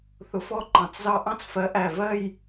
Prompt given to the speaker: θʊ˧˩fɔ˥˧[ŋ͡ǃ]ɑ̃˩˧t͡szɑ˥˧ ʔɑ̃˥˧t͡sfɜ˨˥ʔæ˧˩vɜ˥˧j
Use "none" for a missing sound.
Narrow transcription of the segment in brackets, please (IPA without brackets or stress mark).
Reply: ǃ